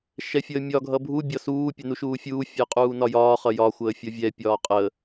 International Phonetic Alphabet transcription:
ʃ ɛ fʲ əː mʲ ɒ ɡʱ ʌ bʱ u bʲ ɒ s uː pʲ ɛ n u ʃ uː fʲ uː fʲ əː qʼ uː n ɒ j ɒː χ ʌ j ɒ xʷ əː fʲ ʌ vʲ ɛ pʲ ɒː qʼ əː

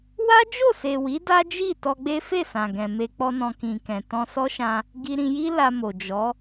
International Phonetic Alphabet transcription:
w a˦ d͡ʒ o˦˨ s e˨ w i˨˦ d a˦ d͡ʒ i˦˨ t ɔ˧ ɡ͡b e˦ f e˦˨ s ã˨ ɡ ɛ̃˨ m e˧ k͡p ɔ˦ n ɔ̃˧ k ĩ˨ k ɛ̃˨ t ɔ̃˧ s ɔ˦ ʃ ã˧ | ɡ i˧ ɾ ĩ˧ j i˦ l a˧ m o˨ d͡ʒ ɔ˨˦

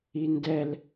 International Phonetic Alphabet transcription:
i n d ɛ l

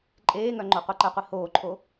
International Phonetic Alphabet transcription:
ǃʼ eː ŋ œ ŋ͡ǃ o qʷ ɛ ǃ ɛ qʷ i h oː ǃʰ o

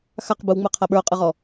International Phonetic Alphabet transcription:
x a q b ɯ w ŋ͡m ɯ qʰ a ɓ ə˞ ʊ̯ qʼ ɯ ʁ ɔ

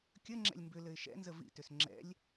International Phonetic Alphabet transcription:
kʲ ə ŋ͡ǁ ɛ̰ lʲ m b ʏ l ɘ ɪ̯ ʃ ɛ̰ n z ə v ḭ t ʏ s ŋ͡ǁ ɛ̰ lʲ

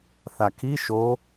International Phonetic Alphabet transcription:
θ a kʰ i ʃ o

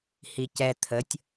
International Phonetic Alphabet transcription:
h i c ɛ t̪ʰ ə tʲ

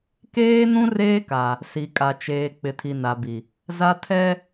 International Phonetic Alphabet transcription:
k eː˦ n ũ˦ r eː˦ k a˨ | s i˨ kʼ a˨ t͡ʃ eː˨ k͡p ɪ˨ tʰ i˨ n a˨ b i˨ | z a˦ tʰ ɛ˦

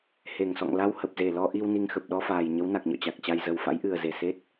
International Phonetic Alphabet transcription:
h e˧˩ ŋ s ɔ̰˧˨ ŋ l a˧ w h ə˨˩ p̚ z e˧˩ l ɔ˧ ʔ i˧ w n i˧ ŋ x ə˨˩ p̚ ɗ ɔ˧ f aː˨˩ j ɲ ə˨˦ w n a˨˩ k̚ ɲ ɔ̰˧˨ t͡ɕ a˨˩ k̚ t͡ɕ a˧ j z ə˨˩ w f a̰˧˥ j ʔ ɨ˨˩ ə̯ z e˧˩ s e˦˥ t̚

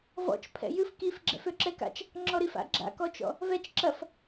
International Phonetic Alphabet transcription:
v ɔ̰ t͡ʃ pʰ ɛ̰ j ɨ f k i f ɡ͡ǁ ɛ̰ f ø ǁ ɛ k a̰ t͡ʃ | ŋ͡ǁ ɔ ɾ i f a̰ ɡ͡ǁ a̰ k ɔ t͡ʃ ɔ̰ | v ɛ t͡ʃ ǁ ɐ f

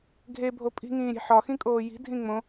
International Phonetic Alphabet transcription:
ɡʱ e bʱ o pʼ i̤ ŋ ĩː ɾʲ e̤ ħ ɒ x ĩ kʼ oː j i̤ dʱ ĩ ŋ͡m õ

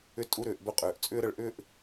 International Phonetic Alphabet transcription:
ʏ˧ tʼ u˧ ɾ ʏː˩ ʔ b ʏ˧ qʼ ʏː˩ ʔ t͡sʼ ʏː˥ ɾ ə˧ ɭ ʔ ʏː˥ ʔ

